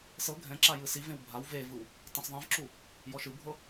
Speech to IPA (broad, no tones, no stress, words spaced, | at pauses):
sɤ ɡʱɛ̃ǁa jɯsivẽw bʱaw vevɯw | tˤẽsðˤẽvǁu | jɔʃɯbʱɤ